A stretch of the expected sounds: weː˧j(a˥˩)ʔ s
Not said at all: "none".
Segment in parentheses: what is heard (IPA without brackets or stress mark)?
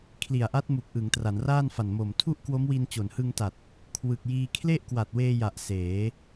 a˨˩